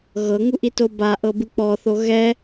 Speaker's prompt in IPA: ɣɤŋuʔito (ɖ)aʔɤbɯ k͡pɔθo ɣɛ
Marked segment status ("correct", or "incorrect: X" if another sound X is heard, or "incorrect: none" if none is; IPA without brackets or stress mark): incorrect: b